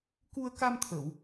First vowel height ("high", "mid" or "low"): high